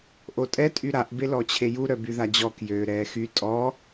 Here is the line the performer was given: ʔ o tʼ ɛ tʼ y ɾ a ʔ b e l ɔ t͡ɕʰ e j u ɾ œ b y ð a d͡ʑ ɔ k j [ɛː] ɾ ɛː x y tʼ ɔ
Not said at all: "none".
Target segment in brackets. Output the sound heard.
øː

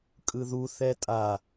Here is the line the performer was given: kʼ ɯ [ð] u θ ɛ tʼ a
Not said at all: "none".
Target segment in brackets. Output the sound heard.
ð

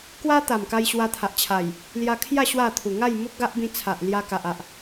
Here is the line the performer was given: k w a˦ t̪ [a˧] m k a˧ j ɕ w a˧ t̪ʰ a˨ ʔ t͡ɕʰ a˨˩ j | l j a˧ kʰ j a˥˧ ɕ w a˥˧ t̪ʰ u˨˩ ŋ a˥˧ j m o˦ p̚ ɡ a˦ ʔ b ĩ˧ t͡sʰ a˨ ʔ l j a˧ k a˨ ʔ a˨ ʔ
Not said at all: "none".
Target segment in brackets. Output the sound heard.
a˨˩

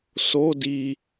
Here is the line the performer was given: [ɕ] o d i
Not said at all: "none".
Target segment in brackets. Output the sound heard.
s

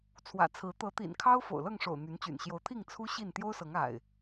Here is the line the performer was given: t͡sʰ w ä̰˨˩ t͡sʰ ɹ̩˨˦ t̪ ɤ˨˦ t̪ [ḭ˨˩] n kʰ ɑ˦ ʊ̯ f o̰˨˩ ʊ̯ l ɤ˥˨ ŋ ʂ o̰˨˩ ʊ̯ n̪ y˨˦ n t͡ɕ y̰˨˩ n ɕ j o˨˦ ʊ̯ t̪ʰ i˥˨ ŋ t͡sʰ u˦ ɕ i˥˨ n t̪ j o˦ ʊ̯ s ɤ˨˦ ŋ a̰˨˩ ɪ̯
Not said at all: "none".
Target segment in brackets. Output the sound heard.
ḭ˨˩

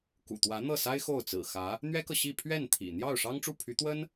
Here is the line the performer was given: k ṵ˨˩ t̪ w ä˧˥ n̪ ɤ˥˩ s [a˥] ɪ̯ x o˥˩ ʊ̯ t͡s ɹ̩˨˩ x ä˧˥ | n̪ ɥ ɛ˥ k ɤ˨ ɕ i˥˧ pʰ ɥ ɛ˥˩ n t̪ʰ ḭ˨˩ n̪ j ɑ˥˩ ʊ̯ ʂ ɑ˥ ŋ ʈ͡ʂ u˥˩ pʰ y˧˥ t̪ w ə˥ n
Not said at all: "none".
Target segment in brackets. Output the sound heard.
a˥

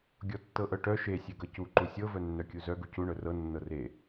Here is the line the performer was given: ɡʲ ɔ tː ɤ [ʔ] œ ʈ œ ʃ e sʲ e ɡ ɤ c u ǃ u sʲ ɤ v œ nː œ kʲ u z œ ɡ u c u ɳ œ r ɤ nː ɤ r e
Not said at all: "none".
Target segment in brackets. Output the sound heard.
ʔ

